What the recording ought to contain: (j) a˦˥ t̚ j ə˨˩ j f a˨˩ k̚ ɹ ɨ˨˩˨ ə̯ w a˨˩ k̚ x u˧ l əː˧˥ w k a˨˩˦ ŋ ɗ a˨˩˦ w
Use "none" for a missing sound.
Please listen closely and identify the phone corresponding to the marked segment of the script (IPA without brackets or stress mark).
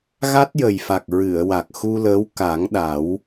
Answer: ɣ